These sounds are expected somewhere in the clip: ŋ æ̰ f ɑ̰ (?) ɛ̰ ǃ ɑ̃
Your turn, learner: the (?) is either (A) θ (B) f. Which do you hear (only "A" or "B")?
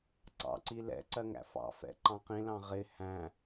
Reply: B